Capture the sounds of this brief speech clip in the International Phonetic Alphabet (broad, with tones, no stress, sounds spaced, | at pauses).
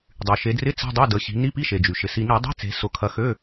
dˤ y˩ ʃ e˩˧ d r ɪ˧˥˧ t͡s e̤˧˥˧ dˤ ø˧˥˧ d ə˩˧ ɕ i̤˩˧ n i˧˥˧ p i˧˥˧ ʃ e˩ d͡ʒ y˩ ʃ ɪ˩˧ s i˧ n i˧˩˧ dˤ i̤˧˥˧ t͡s e̤˩˧ s ʊ˧˩˧ kʰ ɐ˧ x ø˧˥˧